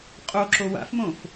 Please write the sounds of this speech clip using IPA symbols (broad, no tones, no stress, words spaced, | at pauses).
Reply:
qʼoǁo wa̰fmõf